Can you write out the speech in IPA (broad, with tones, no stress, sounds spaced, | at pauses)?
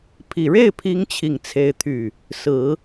pʰ i˨˩ ɻ e˥˩ ɪ̯ pʰ i˧˥ ŋ t͡ɕʰ i˥˩ ŋ t͡sʰ e˥ ɪ̯ t̪ʰ y˥˩ | s ɹ̩˨˩˦